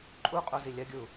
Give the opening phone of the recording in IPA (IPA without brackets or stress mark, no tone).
ǃʼ